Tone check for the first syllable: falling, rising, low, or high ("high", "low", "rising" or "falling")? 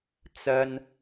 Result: high